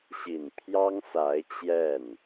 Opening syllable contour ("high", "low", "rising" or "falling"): low